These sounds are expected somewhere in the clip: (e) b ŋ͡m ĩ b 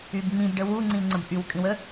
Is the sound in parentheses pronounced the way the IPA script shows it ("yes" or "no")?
no